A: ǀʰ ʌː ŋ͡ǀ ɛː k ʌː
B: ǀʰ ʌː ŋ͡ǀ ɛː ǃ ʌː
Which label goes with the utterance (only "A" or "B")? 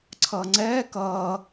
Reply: A